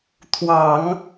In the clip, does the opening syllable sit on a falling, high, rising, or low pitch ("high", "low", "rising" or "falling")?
low